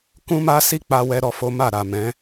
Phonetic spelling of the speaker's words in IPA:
k ũ˦ m a˦ s i˦ k͡p a˧ w ɛ˦ ɾ ɔ˧ f o˦ m a˦˨ ɾ a˨ m ɛ̃˨˦

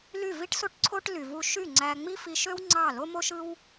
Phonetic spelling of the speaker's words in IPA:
l y˥˩ v i˥ ʈ s o˥ ʈ ǀʰ o˥ ʈ l y˩ v u˧ ʃ y˥˩ ŋ͡ǀ æ˧ ŋ͡m i˥ f i˧ ʃ ø˥ w ŋ͡ǀ ɑ˥˩ l o˥ m o˥ ʃ ɯ˥ w

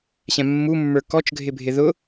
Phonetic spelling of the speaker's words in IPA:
ɕ ɛ̃ mː u mː ə˞ k ɔ t͡ʃ ɡʱ ɪ bʱ ɪ ð ʊ

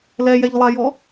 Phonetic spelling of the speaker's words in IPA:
l ɛ j ɛ ʎ lˠ a j ɔ

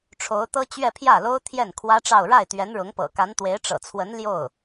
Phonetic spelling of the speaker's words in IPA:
ʈ͡ʂʰ o˧˥ ʊ̯ t̪ ɤ˥ t͡ɕ ɥ ɛ˥˧ pʰ j ä˥˩ l o˥ ʊ̯ t̪ʰ j ɛ˥˩ n kʰ w ä˥ ʈ͡ʂ ɑ˥˧ ʊ̯ ɻ a˥˩ ɪ̯ t̪ ɥ ɛ˧˥ n ɻ ʊ˧˥ ŋ p ɤ̰˨˩ k a˧˥ n t̪ w e˧˥ ɪ̯ ʈ͡ʂ ɤ̰˨˩ t͡sʰ w ə˧˥ n l j o˥˩ ʊ̯

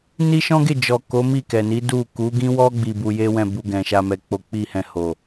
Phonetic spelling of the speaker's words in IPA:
n i˦ ʃ ɔ̃˦ ɡ e˦˨ d͡ʒ ɔ˨ k o˨˦ m i˦˨ k ɛ˨ n i˨˦ d u˦˨ k u˨˦ ɡ ĩ˦ w ɔ˦ ɡ͡b i˧ b u˧ j e˦ w ɛ̃˦˨ b u˧ ɡ ɛ̃˨ ʃ a˧ m ɛ˨ k͡p o˨˦ k͡p i˦˨ h ɛ̃˧ h o˨

